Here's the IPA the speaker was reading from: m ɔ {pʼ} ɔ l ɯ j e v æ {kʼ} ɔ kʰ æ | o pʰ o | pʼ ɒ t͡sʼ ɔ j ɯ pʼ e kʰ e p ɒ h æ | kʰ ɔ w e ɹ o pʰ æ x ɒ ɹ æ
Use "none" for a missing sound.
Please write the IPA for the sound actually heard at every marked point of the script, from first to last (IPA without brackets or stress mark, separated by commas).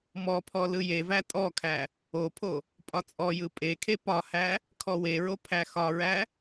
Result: pʰ, tʼ